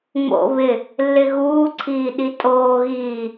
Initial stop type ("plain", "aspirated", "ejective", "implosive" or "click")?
click